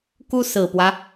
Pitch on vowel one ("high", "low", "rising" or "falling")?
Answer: high